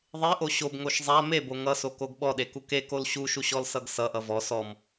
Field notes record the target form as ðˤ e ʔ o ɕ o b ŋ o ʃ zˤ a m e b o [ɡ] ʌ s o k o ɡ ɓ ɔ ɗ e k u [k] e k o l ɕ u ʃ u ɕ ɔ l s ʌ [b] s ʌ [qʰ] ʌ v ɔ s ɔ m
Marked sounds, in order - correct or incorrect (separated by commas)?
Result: incorrect, correct, incorrect, incorrect